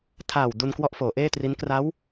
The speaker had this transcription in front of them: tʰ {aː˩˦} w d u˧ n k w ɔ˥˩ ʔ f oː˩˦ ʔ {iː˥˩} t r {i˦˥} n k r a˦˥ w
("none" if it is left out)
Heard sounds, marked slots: aː˨˩, eː˥˩, i˦˥

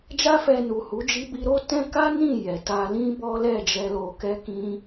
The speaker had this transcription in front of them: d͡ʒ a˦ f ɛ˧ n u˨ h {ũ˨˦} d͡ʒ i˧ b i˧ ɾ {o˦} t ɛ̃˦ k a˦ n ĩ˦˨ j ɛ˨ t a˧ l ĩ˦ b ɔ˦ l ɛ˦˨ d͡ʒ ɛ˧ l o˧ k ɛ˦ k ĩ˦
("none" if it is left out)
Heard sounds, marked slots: u˨˦, o˦

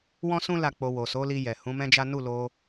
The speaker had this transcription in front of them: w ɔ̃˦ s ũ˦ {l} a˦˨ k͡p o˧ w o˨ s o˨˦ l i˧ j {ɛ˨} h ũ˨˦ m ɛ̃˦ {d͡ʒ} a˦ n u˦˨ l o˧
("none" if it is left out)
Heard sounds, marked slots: l, ɛ˨, d͡ʒ

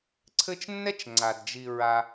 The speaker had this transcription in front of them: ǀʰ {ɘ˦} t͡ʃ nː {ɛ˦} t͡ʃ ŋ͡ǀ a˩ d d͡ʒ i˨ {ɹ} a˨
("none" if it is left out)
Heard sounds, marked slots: ɘ˦, ɛ˥, ɹ

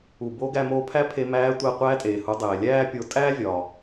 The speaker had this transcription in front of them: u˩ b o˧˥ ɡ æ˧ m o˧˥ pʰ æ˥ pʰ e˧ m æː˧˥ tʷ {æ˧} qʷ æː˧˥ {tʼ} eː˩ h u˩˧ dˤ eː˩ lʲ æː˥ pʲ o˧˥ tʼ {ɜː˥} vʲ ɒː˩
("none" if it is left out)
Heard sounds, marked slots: æ˧, tʼ, æː˥

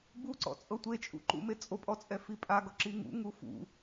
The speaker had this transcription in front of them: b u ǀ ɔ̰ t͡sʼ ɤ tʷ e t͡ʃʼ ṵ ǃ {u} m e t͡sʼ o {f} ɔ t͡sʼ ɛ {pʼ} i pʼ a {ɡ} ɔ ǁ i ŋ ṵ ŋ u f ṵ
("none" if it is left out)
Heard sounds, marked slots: ṵ, pʼ, f, ɡ

